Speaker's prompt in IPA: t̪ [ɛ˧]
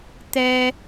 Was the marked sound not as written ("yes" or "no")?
no